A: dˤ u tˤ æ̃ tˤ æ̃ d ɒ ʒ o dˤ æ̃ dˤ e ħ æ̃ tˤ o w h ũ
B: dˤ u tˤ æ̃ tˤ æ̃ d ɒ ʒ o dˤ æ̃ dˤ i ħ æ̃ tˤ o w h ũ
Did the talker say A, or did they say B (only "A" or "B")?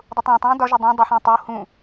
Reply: A